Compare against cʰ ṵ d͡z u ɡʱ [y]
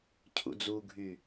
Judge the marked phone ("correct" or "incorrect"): correct